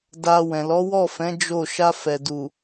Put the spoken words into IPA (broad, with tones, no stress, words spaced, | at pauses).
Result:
da˧ wɛ̃˨lɔ˨˦wɔ˦˨fɛ̃˨˦ d͡ʒo˦˨ ʃa˧fɛ˨du˨